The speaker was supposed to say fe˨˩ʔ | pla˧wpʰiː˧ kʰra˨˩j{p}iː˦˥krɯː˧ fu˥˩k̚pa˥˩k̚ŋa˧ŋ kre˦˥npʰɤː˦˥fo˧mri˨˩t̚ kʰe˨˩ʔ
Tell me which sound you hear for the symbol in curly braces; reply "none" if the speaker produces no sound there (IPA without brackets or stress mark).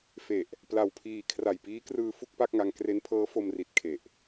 p